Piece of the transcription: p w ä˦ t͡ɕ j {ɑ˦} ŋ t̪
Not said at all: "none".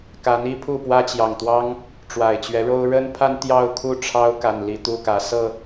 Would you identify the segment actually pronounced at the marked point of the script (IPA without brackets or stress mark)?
ɑ˨˩